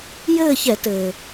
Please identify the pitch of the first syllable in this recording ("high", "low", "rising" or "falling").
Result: falling